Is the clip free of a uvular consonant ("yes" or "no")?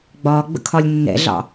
yes